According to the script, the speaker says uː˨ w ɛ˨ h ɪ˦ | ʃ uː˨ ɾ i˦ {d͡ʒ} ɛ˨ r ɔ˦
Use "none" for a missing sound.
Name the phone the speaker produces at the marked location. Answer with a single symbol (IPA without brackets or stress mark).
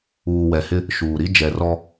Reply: d͡ʒ